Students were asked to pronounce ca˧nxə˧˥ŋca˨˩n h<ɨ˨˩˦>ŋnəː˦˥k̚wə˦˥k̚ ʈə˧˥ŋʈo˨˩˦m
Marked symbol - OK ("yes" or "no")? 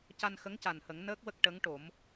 no